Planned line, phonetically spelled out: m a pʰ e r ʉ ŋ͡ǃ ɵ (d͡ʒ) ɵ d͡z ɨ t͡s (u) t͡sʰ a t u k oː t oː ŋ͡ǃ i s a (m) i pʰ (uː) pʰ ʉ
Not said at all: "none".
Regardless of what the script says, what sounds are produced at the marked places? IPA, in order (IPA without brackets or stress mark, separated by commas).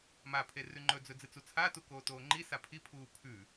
d͡z, u, pʰ, uː